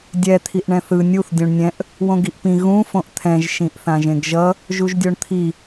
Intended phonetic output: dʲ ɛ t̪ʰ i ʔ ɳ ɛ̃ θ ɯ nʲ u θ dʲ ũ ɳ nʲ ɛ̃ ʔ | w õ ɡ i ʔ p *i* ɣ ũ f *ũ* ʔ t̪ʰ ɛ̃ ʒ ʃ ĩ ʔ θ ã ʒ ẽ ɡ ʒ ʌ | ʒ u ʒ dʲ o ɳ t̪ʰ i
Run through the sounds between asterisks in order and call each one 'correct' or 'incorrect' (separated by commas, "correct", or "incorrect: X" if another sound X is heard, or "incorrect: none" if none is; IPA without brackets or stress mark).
incorrect: ĩ, incorrect: õ